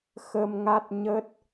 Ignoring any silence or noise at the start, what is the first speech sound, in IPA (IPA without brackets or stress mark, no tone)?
x